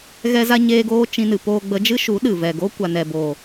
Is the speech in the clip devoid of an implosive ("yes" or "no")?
no